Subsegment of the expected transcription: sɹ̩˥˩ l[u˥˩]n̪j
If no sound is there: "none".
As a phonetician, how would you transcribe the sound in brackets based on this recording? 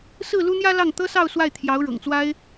u˥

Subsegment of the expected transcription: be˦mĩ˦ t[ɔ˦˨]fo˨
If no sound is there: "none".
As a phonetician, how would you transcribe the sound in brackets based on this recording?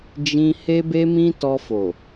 ɔ˧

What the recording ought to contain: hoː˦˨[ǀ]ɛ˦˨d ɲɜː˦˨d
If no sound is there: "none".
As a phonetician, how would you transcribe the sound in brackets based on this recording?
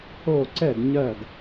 ǀ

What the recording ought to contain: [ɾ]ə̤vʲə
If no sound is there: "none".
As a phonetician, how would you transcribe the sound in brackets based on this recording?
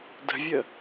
d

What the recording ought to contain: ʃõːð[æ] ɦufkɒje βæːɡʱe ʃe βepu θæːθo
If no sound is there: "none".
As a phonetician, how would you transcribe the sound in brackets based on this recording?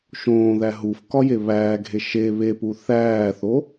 æ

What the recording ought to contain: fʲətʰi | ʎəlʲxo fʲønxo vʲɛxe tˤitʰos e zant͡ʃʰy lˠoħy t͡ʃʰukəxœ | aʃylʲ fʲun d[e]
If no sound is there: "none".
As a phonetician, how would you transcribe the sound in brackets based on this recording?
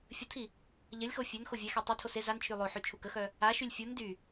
y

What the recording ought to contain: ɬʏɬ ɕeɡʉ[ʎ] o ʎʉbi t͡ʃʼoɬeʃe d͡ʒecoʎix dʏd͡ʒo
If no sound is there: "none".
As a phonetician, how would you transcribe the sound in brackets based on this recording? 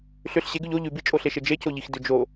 ʎ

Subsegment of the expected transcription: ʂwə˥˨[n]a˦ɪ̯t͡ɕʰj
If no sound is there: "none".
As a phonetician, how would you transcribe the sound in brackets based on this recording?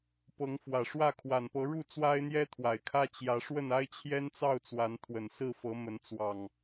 n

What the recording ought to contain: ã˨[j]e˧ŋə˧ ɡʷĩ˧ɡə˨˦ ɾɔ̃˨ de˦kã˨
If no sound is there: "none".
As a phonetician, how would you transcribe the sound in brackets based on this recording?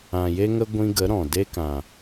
j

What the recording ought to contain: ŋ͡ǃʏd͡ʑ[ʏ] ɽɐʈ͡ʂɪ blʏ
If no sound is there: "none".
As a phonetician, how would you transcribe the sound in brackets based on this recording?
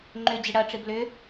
ɪ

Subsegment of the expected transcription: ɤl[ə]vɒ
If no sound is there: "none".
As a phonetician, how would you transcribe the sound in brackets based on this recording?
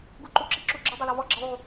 ɔ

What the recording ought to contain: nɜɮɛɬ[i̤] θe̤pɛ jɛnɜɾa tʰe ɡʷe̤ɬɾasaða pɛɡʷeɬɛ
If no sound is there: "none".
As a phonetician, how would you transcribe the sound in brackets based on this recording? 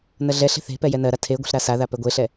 e̤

